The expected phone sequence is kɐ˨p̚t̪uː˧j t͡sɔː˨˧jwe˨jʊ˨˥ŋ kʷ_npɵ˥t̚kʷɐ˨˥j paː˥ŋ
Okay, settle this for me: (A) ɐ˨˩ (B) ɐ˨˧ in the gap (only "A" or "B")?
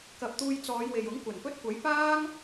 A